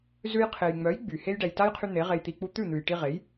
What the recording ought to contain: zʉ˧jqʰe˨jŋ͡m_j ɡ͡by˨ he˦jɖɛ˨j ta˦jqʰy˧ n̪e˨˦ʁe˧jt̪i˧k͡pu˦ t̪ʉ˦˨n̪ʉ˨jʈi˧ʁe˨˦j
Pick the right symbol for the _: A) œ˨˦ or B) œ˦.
A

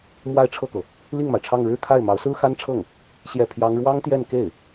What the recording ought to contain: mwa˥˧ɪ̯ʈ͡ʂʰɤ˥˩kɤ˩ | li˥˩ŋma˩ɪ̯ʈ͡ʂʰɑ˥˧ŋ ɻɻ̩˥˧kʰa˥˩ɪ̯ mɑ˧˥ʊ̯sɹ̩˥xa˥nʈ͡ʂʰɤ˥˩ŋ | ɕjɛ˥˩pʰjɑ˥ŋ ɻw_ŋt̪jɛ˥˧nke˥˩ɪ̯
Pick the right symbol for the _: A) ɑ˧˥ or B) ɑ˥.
B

